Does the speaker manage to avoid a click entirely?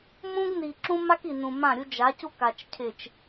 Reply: no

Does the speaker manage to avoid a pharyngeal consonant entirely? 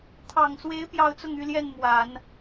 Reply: yes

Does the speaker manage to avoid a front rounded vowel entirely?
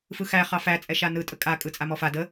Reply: yes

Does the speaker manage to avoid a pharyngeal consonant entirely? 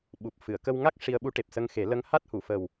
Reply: yes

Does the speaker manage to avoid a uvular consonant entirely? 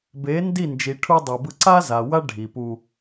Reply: yes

